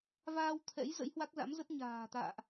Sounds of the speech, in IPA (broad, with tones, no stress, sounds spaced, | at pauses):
v aː˧ w t̪ʰ ɛ̰˧˥ j z ə̰˧˥ j h w a˦˥ k̚ z a̰˧˥ m z ə˦˥ t̚ ɲ a̤ː˨˩ t̪ a̰ː˧˨ ʔ